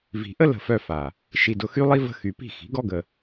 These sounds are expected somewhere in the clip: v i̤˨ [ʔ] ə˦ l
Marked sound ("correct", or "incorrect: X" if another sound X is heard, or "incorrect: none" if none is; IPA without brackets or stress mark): correct